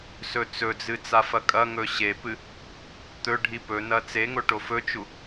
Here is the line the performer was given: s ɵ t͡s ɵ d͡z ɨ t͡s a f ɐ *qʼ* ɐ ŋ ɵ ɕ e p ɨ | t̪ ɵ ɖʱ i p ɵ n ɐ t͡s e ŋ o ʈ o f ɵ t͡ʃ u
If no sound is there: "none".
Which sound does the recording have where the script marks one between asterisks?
kʼ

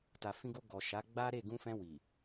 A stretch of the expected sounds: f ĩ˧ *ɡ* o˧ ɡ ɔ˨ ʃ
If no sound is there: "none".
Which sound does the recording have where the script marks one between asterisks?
ɡ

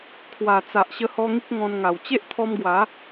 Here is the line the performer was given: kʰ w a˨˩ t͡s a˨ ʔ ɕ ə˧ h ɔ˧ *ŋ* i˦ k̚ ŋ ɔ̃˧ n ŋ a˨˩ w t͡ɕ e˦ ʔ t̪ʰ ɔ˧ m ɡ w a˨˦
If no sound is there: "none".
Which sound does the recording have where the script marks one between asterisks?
ŋ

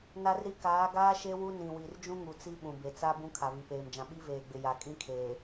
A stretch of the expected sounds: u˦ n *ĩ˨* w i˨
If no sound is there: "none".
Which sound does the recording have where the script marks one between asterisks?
ĩ˨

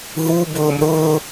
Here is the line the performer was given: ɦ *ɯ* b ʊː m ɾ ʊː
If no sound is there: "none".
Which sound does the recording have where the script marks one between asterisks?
u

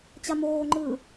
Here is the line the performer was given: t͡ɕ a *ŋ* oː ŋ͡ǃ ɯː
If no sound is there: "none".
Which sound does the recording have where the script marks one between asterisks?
m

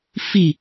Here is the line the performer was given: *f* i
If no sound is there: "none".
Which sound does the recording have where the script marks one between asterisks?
f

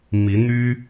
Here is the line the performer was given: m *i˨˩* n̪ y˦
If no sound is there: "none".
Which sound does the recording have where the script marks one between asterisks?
i˨˦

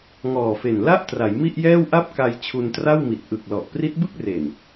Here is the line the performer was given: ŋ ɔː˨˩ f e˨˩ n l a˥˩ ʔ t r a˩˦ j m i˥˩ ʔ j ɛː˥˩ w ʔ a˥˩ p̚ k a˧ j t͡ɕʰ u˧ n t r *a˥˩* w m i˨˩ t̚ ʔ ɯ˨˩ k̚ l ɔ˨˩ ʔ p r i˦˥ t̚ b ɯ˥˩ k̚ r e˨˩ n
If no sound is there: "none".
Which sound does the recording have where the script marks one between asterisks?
a˥˩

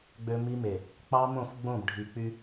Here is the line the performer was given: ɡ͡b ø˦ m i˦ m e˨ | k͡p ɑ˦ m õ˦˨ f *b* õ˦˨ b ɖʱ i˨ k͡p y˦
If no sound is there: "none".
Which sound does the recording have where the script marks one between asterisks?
ɡ͡b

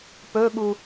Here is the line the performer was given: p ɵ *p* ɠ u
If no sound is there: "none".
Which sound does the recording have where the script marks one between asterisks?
none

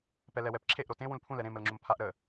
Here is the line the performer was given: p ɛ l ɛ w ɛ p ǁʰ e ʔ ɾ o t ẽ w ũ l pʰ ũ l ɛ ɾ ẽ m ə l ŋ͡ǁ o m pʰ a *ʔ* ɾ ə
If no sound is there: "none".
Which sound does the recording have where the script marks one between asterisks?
ʔ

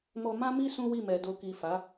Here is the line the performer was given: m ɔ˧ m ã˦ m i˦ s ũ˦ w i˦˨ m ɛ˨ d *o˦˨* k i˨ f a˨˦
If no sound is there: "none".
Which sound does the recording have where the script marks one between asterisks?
o˨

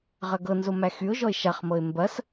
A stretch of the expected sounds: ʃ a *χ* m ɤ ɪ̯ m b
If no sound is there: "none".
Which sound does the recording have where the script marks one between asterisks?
χ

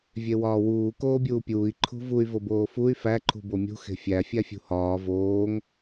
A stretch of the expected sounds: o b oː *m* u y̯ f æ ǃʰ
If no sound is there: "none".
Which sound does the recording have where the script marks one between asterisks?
f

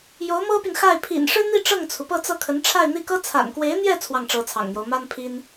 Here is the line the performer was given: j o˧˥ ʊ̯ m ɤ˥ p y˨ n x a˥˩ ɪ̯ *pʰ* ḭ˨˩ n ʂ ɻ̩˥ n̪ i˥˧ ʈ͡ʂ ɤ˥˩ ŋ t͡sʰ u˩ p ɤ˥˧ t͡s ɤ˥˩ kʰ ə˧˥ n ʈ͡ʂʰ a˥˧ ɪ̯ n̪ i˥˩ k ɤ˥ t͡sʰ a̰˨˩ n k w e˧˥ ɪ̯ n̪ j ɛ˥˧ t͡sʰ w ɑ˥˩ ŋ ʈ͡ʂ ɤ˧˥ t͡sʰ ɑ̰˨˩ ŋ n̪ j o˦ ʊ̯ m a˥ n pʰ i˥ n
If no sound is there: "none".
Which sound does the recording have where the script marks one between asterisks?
pʰ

